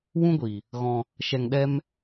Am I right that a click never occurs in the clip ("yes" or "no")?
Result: yes